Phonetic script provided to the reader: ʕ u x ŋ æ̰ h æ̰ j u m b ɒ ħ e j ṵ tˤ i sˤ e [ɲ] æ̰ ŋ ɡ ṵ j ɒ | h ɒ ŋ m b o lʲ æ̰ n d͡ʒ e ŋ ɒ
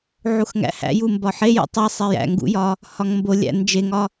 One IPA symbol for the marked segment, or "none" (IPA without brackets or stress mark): j